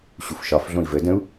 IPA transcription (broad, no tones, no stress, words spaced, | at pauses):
ɕufʃɒf ɮõi̯və də̃u̯